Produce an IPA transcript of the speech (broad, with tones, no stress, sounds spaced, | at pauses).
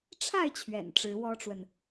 ʈ͡ʂʰ a˥˨ ɪ̯ t͡ɕʰ ɥ ɛ̰˨˩ n ʈ͡ʂ ɻ̩˨˦ w ɔ˦ ʈ͡ʂ w ə˨ n